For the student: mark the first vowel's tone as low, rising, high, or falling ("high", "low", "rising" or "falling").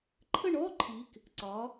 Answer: falling